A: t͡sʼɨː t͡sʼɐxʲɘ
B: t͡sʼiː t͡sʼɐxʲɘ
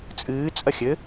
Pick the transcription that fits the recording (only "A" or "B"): A